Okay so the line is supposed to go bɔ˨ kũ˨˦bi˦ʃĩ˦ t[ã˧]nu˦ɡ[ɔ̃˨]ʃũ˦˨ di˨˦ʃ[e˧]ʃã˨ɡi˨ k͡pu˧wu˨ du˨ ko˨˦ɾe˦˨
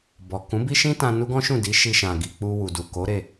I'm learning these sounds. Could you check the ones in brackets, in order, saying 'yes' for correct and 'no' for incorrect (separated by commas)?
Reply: yes, no, no